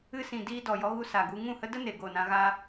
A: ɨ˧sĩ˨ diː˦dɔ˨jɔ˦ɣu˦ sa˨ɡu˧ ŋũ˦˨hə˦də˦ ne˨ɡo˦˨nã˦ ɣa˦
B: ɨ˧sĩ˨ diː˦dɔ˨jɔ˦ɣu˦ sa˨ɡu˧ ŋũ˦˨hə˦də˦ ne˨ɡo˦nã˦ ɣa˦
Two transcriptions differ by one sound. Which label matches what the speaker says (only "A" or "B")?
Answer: A